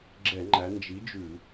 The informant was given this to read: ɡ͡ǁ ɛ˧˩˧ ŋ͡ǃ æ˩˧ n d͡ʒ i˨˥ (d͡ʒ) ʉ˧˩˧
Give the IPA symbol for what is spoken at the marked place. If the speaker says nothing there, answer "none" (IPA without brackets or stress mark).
d͡ʒ